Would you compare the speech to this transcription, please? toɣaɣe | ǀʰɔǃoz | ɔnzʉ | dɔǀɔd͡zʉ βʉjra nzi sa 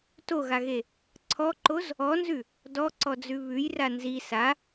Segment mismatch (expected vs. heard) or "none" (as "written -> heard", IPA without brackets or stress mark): none